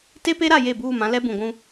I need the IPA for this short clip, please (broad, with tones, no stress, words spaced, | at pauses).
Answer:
te˦pe˦ɾa˦˨ je˦˨buː˦˨mã˦ lɛ˦bũ˨ɡʷũ˦